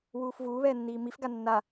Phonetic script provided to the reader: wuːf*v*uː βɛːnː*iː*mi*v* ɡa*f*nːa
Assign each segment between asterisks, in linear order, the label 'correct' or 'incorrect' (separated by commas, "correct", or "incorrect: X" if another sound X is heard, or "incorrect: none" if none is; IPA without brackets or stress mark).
correct, correct, incorrect: f, incorrect: none